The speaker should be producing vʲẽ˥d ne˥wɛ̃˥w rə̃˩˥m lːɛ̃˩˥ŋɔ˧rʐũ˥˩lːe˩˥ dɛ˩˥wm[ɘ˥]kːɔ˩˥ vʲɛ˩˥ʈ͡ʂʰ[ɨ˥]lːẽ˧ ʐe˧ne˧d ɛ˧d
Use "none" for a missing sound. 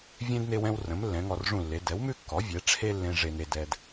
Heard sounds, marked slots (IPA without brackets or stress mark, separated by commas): ʉ˥, e˥